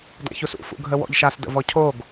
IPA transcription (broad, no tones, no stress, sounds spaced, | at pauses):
d a̰ ç u s ṵ f ṵ ɡʱ ə w ɔ̰ ʎ ʃ a s d ə̰ v ɔ cʰ o ɡ